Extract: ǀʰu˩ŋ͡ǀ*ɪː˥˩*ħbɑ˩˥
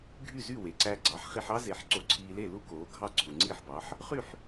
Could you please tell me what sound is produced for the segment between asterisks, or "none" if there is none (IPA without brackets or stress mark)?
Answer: iː˥˩